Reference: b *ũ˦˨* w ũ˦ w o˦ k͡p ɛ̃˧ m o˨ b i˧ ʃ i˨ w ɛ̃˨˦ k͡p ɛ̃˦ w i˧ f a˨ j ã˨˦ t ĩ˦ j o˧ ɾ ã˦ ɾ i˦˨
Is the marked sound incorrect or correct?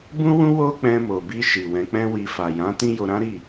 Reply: incorrect